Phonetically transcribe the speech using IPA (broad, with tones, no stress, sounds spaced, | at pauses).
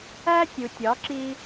æ˦ tʲ u˨ tʲ ɒ˨˦ ǁ i˧